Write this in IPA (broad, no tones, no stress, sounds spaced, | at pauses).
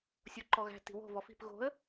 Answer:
sʲ o ǃ ɔ ɣ æ̤ t i̤ w o̤ v ɔ f i̤ p ɣ o̤ ə̯